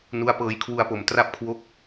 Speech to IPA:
nu˦˥a̯pɤː˧jkʰwu˧a̯po˨˩m tra˥˩p̚kʰwo˦˥k̚

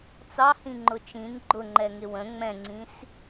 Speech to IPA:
t͡sɑhĩŋ͡ǃʊ t͡ʃĩn ɡ͡ǃʊŋ͡ǃɛŋɪ wə̃ ŋ͡mɛ̃ŋ͡ǀĩs

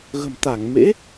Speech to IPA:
ɣə̤˨˩mt̪a˧˩ŋ mḛ˧˥

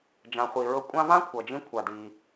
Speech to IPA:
d͡ʒã˩χʷi˩ɹɤ˧ kʷʼã˥ vã˥kʷʰʌ˩d͡ʒĩ˧kʷʰa˩ di˩

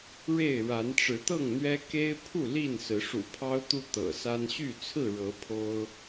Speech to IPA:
ɻe˥˨ɪ̯ ɻa˨˦nʈ͡ʂɻ̩˨˦t̪ɤ˥˨ŋn̪ɥɛ˦ ke˦ɪ̯ pʰu˥˨ li˥˨nsɹ̩˨˦ ʂṵ˨˩pʰɑ˦ʊ̯t̪u˦ t̪ɤ̰˨˩sa˦n ɕy˥˨ t͡sʰɹ̩˥˨ɻɤ˨˦ pʰo˦ʊ̯

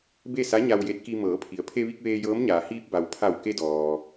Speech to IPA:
be˥˨sa˧˥ ɲa˧wje˧˥t̚ki˧ mɤː˩˧pʰi˩ə̯pʰe˧ʋi˧k̚ ʋeː˧jɤː˧˥mɲaː˩ hiː˧p̚ba˩w pʰa˧˩wke˧dɔː˩

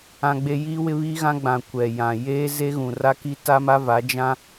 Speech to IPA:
ã˦ɡ͡be˦ ji˦wɪ˦βi˦ ɣã˦ɡ͡bã˨ kʷɛ˨jã˨ jeː˦ze˦ ɣũ˨ra˦ki˦ ta˦ma˦va˨˦ d͡ʒã˦

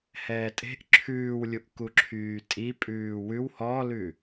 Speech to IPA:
hɛːtʼe̤ʔ ǁʰʉːwlʲuʔ kuǁʰyːtʼi pʼʉːwʉw hɔlʉ

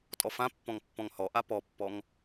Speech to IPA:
tʼɔfãpːɔ̃ŋ pːɔ̃ŋhɔʔa pɔpːɔŋ

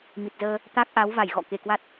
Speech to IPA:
mi˨˩t̚zəː˧ | t̪a˦˥k̚ʔa˨˦wva˧˩j ɣɔ̰˧˨ke˧˩kwa˦˥t̚

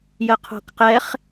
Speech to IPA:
jəqʰo̤kqɛχ

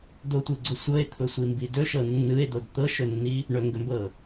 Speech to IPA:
d̪otʷɯɡ͡ǀʊ sʷɤe̯t̪ʰʊsʷimbi dɵʃɤ nːɯe̯d̪od t̪ɤʃɵnːi | ɳɵŋɡɵmbɤ

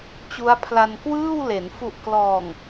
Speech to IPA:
t͡ɕu˦˥a̯pʰla˧n kwɯː˥˩wle˩˦n fu˨˩ʔklɔː˨˩ŋ

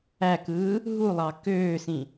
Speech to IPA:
ækɯː | ɦulˠɑ køːsĩ

